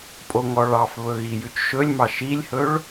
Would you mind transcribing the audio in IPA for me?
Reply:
pʼ o ŋ ɔ ɭ ɑ f β ɵ ɣ i j ʉ t͡ʃ ʃ ɵ lʲ m ɑ ʃ i lʲ h ɵ ɭ

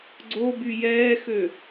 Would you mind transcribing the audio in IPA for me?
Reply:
ɡ͡ǀ o b y j ɛː x ø

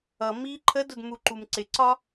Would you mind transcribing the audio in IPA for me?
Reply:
ʌ m iː ǃʰ ə d ʊ d m u ǃ u m ǀ ɪ ǀ ɒ

